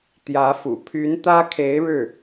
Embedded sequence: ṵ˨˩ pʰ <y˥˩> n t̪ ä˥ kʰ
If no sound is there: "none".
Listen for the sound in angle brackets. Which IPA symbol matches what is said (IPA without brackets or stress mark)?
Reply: y˧˥